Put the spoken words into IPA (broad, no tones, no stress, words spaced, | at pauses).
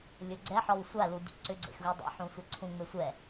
lʲʊɡ͡ǀɛħɔw sʷaludʲṵ ǀʏɡ͡ǀḛxɣu dˤɛ̰ħũsʷʌ ǀʰũŋ͡me sʷɛ